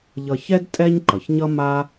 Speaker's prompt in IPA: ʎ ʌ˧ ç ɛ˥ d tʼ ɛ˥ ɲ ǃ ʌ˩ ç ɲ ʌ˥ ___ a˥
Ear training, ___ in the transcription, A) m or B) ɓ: A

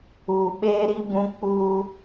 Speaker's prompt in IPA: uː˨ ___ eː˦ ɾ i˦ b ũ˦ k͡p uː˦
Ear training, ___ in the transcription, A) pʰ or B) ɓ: B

